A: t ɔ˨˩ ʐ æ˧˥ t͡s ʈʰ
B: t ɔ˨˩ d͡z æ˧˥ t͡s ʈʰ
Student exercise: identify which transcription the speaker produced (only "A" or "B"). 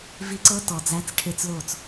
B